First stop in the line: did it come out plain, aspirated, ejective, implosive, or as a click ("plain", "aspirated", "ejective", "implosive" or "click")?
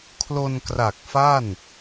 aspirated